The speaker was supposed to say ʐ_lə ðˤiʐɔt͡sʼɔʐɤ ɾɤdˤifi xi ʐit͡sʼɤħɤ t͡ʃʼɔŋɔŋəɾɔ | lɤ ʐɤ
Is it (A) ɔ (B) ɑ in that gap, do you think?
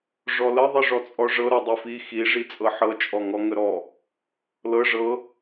A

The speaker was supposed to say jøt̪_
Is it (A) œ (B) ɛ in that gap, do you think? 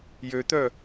A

